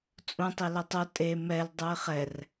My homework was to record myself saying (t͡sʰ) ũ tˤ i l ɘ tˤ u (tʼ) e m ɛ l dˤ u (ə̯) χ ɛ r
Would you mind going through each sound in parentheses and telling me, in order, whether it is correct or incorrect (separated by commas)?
incorrect, correct, incorrect